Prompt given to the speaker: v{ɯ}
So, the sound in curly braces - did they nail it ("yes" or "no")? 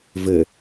no